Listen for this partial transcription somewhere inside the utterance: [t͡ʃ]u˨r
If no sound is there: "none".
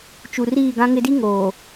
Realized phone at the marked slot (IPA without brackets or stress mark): t͡ʃ